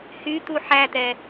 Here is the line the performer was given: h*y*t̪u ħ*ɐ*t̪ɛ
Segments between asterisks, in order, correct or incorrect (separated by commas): correct, incorrect